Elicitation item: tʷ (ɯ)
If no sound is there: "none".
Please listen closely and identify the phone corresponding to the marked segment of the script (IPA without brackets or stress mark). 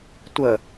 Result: ə